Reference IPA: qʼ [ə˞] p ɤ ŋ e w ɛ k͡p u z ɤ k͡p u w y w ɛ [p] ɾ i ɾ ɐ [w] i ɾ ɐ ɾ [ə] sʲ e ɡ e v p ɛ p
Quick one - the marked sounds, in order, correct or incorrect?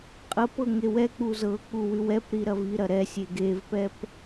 incorrect, correct, incorrect, incorrect

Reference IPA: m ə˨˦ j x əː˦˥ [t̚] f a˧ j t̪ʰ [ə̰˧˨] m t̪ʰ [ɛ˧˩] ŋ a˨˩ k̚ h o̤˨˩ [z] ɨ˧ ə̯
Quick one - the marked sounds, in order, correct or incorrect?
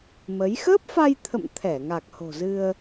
incorrect, correct, correct, correct

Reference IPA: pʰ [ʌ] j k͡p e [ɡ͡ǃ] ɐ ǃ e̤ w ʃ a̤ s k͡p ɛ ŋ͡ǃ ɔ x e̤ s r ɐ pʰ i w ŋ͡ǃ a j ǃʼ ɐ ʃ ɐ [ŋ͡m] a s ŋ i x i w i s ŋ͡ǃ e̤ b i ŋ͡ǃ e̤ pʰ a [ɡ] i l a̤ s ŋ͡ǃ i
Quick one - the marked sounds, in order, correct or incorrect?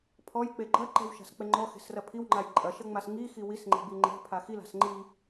incorrect, correct, correct, incorrect

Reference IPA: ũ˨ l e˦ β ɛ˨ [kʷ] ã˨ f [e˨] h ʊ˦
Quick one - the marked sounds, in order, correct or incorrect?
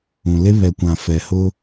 correct, incorrect

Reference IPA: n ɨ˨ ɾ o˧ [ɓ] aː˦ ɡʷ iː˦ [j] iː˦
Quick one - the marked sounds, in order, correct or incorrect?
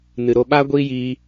correct, correct

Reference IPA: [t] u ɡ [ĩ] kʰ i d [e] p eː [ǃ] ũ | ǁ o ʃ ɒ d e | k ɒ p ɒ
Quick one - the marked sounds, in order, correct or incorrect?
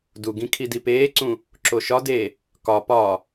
incorrect, correct, incorrect, incorrect

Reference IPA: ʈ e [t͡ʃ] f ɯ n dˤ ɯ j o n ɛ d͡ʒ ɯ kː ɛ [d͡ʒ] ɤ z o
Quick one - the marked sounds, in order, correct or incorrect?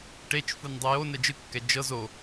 correct, correct

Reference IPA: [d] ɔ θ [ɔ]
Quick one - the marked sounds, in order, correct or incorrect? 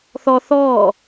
incorrect, incorrect

